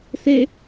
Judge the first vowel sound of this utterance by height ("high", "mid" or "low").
mid